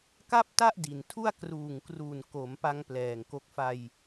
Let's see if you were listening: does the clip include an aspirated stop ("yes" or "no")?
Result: yes